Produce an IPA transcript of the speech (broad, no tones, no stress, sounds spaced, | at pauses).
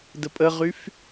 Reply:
d ə pʼ ə ʁ y f